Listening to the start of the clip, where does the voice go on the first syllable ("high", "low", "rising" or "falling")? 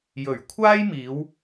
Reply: low